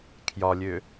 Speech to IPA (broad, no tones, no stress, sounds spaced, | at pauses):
kʰ j ɒ lʲ ø